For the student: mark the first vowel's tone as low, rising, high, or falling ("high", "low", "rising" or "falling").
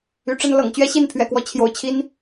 rising